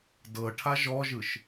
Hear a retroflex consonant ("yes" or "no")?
yes